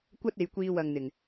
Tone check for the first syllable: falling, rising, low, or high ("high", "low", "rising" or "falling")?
high